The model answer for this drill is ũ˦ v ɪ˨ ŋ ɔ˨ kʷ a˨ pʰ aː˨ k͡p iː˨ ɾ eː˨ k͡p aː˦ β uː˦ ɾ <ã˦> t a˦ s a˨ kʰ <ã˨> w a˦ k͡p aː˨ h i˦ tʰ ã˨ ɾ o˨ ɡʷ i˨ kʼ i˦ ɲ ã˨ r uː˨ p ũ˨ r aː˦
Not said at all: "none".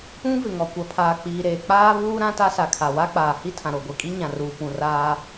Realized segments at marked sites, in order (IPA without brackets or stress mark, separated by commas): ã˦, a˨